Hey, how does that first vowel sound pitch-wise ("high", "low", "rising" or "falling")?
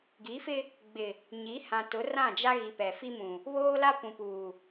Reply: rising